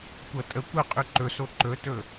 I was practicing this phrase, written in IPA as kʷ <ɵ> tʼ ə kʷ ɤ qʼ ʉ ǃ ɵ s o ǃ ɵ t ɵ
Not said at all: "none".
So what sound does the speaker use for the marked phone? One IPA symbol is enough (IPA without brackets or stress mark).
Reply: ɤ